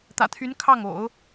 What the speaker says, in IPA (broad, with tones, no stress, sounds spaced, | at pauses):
t̪ ä̰˨˩ t̪ʰ y˧˥ n kʰ ɑ˥˩ ŋ o̰˨˩˦ ʊ̯